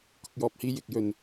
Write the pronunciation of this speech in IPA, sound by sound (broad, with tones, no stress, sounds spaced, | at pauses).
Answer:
k ʊ˨ k̚ j ɔː˨ p̚ h iː˧ j ɪ˨ k̚ j ɵ˧ n